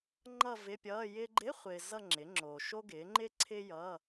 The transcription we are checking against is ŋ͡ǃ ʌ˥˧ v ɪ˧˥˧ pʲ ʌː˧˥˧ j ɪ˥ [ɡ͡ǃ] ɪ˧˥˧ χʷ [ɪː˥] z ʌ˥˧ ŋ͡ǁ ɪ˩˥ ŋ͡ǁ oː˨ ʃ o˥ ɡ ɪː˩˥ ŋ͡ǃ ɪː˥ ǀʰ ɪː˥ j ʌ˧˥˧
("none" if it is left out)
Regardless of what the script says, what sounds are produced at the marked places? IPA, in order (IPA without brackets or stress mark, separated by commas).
ɡ͡ǃ, ɪː˨